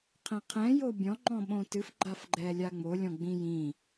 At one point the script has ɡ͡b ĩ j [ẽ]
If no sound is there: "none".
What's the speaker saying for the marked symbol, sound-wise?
ĩ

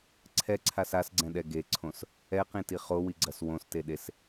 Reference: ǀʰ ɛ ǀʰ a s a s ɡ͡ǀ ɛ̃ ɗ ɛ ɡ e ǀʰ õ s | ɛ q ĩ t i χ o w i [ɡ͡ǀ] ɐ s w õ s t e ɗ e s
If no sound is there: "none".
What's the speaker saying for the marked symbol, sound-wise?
ɡ͡ǀ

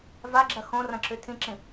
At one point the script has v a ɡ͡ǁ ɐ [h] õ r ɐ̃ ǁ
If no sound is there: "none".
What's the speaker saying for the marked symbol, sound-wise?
x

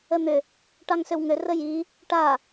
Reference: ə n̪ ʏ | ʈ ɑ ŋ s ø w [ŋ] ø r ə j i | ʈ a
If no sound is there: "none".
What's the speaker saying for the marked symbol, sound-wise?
ŋ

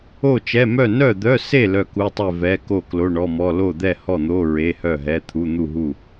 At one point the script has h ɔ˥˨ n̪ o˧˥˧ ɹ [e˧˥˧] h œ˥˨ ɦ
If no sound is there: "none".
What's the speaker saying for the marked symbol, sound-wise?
e˧˥˧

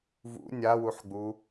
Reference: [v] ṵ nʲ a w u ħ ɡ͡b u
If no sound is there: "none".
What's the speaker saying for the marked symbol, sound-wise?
v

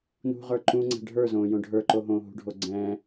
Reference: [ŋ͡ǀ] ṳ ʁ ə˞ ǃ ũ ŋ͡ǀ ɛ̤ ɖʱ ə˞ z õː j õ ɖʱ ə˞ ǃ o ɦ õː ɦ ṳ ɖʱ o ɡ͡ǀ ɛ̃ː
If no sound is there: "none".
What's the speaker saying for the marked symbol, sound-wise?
n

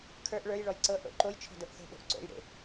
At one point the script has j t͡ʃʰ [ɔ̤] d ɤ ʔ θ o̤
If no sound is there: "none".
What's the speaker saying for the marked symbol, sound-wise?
ɔ̤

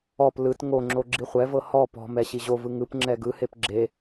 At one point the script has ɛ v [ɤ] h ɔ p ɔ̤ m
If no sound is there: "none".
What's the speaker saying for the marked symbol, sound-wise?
ɤ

